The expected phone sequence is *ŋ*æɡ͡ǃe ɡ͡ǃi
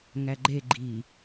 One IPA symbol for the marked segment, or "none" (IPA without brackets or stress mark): ŋ